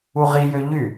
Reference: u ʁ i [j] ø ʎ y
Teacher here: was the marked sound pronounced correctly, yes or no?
yes